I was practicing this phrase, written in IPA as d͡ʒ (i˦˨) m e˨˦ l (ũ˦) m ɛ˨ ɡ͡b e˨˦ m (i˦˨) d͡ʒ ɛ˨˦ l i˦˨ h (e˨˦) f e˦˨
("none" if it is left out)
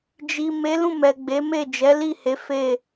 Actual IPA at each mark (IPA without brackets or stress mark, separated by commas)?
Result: i˨, ũ˦˨, e˦˨, e˨˦